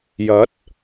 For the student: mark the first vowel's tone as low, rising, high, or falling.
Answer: rising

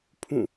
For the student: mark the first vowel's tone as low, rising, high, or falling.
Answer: falling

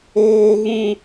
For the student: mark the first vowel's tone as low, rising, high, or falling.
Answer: high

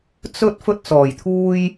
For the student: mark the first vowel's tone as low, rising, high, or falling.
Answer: high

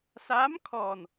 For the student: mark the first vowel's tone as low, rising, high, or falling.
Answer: rising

